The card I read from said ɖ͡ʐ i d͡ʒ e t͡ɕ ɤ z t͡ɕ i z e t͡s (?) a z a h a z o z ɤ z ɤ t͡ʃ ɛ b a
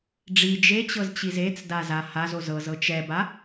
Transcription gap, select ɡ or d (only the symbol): d